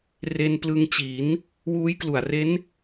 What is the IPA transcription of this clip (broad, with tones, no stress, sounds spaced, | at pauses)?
r e˧ n p l ɯ˧ ŋ t͡ɕ i˩˦ n | w uː˦˥ j k l u˨˩ a̯ r e˦˥ n